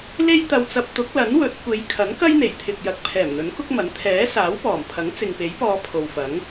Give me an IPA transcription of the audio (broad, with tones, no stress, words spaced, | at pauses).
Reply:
le˥jt̪ɐ˧wt͡sɐ˧p̚ t̪ʊ˨˥k̚lɐ˨˥nwɵ˨˥t̚ kʷe˨˧j kʰɐ˨˥nkɐ˥jn̪e˨˩jt̪ʰɪ˨k̚ jɐ˨˥k̚pʰɛː˨˩mn̪ɵ˨˥n kʊ˥k̚mɐ˨˥n t̪ʰɛː˨˥ saː˨˥wpɔː˨˩mpʰɐ˨˥ŋ t͡sɪ˨ŋpe˨˥jpɔː˧ pʰo˨wfɐ˨˥ŋ